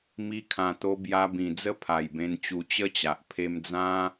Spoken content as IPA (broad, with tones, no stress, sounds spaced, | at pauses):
m i˧ kʰ ã˨˩ t̪ o˧ b j a˧ b ĩ˨˩ d͡z ə˦ pʰ a˨˩ j b ẽ˧ n t͡ɕ u˧ t͡ɕ ə˦ t͡ɕ a˨ ʔ pʰ e˧ m d͡z ã˦